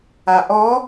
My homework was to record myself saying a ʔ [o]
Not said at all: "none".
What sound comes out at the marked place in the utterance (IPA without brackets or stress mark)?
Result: ɔ